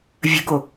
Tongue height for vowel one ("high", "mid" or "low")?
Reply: mid